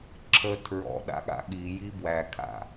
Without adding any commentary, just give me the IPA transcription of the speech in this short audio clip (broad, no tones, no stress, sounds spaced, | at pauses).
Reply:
ǁʰ ə tʰ ɹ ɔ̰ ɗ a̰ ɠ a̰ ɠ i j i b w æ kʰ a̰